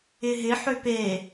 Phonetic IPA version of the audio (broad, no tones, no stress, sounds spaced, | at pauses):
ɪ ɦ ɪ ħ ø p e